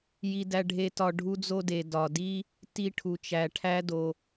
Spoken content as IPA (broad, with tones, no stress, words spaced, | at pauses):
ji˧dæ˧ɖʱe˧tɒ˧ ɖʱu˧d͡zo˧de˩ dɒ˩di˧ | ti˧ʈʰu˩t͡ʃæ˩ ʈʰæ˧do˩